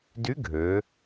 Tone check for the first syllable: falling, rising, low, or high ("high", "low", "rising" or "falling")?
rising